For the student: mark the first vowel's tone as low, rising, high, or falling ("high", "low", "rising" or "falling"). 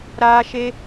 high